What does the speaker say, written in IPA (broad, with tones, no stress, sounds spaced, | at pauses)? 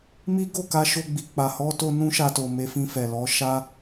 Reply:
m i˦ ɡ o˦˨ k a˧ ʃ o˧ ɡ͡b i˨ k͡p a˨ h ɔ˧ t o˧ n ũ˦ ʃ a˧ t o˨ m e˧ f ĩ˧ f ɛ˨ l ɔ˨˦ ʃ a˦